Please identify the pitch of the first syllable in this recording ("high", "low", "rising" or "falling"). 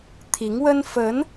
rising